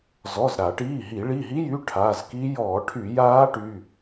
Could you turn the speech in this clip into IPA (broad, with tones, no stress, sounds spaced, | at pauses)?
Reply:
z ɔ˩˧˩ z ɾ a˧˩˧ ʈ iː˩˧˩ ɦ i˧˩˧ ɭ i˩˧˩ ɦ i˦˥ j y˩˧˩ ʈʰ a˩˧˩ z k i˦˥ j ɔː˧˩˧ ʈʰ y˧˩˧ j aː˦˥ ʈ y˩˧˩